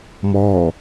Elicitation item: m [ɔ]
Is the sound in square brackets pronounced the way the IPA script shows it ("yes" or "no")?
no